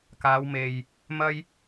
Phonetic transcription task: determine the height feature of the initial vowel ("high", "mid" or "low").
low